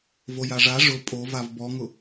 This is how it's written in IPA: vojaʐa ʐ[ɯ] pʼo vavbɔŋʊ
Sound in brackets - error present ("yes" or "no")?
yes